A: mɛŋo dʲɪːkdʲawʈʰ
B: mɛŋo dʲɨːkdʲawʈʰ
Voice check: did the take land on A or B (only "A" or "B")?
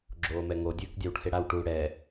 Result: B